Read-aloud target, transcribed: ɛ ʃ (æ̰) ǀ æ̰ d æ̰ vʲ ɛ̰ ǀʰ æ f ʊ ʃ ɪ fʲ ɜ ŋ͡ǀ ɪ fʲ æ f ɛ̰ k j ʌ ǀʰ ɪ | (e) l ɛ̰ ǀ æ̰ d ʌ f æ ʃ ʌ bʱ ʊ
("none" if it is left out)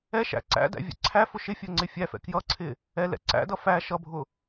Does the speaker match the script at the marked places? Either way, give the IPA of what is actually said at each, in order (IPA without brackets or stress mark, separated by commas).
æ̰, ɛ